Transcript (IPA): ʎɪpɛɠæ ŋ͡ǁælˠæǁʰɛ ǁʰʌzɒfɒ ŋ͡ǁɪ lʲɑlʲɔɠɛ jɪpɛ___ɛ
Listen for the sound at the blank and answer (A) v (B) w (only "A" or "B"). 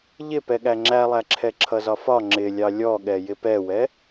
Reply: B